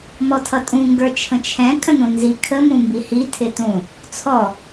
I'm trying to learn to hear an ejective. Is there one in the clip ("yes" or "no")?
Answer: yes